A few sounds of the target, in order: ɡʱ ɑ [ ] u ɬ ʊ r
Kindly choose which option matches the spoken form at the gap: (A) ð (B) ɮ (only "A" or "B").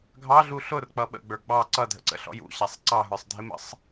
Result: B